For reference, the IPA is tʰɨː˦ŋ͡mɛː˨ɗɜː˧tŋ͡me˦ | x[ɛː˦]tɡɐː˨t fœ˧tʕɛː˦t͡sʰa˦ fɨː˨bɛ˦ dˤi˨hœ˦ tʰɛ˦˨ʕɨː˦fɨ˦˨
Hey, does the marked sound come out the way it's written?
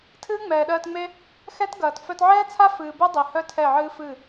no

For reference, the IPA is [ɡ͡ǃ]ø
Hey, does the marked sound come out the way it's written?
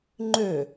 no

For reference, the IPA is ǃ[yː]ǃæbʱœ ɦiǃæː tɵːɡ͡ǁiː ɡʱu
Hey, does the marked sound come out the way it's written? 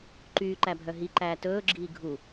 yes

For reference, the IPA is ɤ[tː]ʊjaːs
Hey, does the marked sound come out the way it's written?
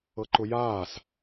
no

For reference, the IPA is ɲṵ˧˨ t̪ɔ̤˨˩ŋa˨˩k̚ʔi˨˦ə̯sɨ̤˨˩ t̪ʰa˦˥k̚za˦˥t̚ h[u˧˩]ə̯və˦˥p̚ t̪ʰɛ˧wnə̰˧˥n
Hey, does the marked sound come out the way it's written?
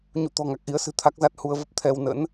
no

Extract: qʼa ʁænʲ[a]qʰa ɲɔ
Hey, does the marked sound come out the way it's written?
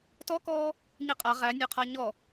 no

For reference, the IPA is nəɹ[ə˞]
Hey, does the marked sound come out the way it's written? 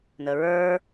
yes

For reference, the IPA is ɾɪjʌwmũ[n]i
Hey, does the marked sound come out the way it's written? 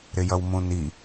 yes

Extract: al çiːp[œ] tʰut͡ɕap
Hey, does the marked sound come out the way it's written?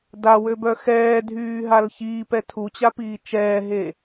no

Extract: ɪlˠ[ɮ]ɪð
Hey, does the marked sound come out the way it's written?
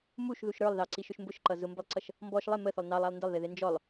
no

